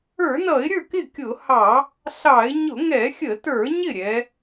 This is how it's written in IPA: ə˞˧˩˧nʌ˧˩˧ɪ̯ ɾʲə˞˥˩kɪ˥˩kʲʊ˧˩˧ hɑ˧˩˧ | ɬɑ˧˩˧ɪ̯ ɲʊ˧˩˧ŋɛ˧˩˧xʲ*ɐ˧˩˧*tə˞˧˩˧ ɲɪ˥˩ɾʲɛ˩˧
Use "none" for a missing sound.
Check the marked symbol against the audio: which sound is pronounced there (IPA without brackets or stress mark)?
ə˧˩˧